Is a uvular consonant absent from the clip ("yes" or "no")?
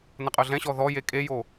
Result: no